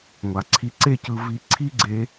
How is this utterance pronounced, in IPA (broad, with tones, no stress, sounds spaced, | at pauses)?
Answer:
ŋʷ a˨ ǀʰ i˧ ǀ e˦ c ɯ˧ v i˧ ǀʰ i˦ ɡ͡ǀ e˧